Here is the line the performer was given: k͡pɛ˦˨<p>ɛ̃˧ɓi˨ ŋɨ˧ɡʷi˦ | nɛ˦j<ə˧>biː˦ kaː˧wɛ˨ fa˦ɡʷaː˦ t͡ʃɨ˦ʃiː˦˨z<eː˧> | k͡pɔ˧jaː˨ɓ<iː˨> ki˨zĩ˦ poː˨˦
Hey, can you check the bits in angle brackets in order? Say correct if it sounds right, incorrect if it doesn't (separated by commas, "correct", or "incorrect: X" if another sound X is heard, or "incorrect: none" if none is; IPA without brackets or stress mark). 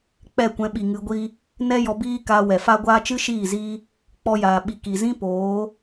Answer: incorrect: kʷ, incorrect: ɔ˧, incorrect: iː˧, incorrect: i˨